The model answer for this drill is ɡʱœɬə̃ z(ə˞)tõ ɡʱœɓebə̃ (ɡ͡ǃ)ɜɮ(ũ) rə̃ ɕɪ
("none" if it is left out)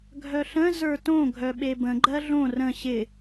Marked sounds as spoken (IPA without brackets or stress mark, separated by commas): ə˞, ɡ͡ǃ, õ